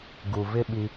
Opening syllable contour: low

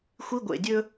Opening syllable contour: high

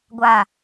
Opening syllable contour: falling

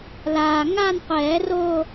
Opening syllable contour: low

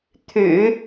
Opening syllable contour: low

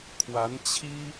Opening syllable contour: rising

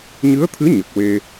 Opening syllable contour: rising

